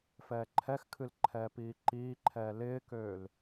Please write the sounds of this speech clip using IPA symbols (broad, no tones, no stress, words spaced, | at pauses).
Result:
fɛːǃʰɛxkʰɨl ǃʰɛːpiːǃiːǃʰɛː lɪːkøːl